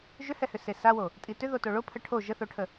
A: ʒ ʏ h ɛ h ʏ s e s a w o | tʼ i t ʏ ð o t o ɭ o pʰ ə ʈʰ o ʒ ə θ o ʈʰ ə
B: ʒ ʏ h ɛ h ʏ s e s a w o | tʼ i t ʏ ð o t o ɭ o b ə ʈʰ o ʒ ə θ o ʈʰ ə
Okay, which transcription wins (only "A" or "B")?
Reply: A